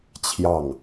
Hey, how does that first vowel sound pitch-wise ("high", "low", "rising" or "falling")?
falling